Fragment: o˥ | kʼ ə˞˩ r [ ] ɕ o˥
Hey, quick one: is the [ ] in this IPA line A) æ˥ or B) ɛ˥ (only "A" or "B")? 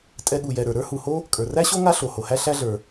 A